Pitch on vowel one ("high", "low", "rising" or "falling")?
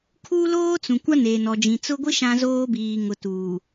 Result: high